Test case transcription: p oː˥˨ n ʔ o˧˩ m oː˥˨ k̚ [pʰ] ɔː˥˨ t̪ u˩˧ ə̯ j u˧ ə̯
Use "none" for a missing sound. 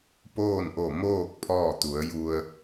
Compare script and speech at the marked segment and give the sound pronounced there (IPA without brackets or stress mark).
pʰ